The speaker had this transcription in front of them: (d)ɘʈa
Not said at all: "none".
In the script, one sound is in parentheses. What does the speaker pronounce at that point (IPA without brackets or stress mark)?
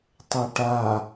tˤ